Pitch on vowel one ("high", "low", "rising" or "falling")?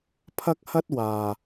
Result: high